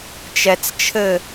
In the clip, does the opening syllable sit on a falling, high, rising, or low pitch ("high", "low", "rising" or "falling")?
low